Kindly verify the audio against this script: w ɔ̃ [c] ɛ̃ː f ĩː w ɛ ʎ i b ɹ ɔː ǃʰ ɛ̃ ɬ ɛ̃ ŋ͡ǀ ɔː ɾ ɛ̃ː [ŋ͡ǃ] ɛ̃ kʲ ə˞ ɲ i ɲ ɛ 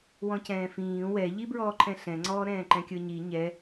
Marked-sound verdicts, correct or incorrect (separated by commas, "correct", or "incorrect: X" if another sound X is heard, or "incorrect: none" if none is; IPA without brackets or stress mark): correct, incorrect: ǃ